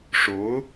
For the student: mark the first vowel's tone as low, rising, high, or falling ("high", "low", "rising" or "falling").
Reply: rising